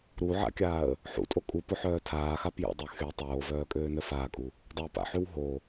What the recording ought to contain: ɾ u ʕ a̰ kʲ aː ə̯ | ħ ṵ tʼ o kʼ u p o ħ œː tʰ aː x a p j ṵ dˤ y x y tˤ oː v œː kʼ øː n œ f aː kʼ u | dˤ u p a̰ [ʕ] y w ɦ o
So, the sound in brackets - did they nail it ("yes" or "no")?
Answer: no